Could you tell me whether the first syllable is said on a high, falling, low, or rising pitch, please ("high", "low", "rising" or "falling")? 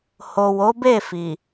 low